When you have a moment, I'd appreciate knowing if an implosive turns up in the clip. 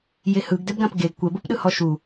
yes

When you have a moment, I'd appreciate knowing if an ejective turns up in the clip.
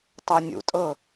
yes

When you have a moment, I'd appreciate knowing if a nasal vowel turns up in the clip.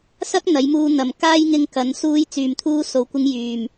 no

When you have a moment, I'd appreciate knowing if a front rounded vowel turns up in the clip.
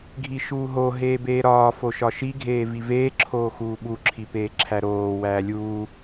no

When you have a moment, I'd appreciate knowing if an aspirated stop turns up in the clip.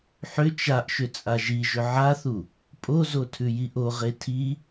yes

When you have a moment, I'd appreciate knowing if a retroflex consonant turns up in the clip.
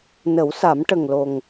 yes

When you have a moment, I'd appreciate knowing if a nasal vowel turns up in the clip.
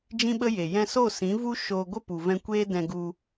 yes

